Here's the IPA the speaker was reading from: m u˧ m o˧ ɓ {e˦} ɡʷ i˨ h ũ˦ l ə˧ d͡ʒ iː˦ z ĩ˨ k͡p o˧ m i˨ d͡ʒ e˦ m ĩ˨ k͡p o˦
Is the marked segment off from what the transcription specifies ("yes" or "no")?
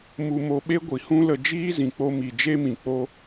no